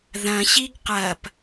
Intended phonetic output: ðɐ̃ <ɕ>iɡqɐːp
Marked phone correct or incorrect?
correct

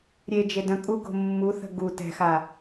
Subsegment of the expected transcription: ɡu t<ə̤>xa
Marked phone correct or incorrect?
incorrect: ɛ̤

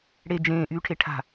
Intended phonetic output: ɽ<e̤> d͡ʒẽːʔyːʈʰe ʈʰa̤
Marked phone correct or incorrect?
incorrect: e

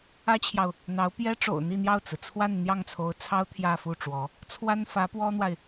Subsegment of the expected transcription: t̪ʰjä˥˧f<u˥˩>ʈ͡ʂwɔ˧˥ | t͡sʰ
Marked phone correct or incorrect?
correct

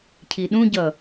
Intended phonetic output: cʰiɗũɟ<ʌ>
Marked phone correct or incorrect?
correct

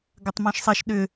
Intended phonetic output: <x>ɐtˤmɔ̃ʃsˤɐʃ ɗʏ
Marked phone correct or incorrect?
incorrect: ɡ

